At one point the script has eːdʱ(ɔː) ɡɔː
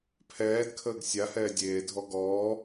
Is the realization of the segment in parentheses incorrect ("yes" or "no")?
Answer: yes